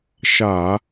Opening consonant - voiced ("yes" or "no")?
no